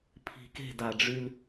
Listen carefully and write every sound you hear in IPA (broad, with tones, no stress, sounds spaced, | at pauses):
pʰ i̤˨ k e̤˦˨ d a˨ ɖ͡ʐ y˦ l